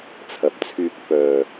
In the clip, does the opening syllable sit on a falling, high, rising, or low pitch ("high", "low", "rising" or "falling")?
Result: low